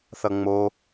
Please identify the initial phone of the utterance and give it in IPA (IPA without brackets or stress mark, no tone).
θ